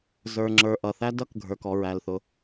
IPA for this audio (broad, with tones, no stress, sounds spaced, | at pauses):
z ə˞˩ ŋ͡ǁ ə˞˩ ʔ ʌ˩ θ æ˥ d ʌ˥ k ɡʱ ə˞˩ k ɔ˩ ɹ æ˩ l θ ʊ˩